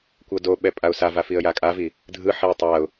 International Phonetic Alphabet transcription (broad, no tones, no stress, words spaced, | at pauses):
kʷɤdoɓɛ pʼaʊ̯sava fiə̯jakʼavi | dʱɯħiə̯ tˤaʊ̯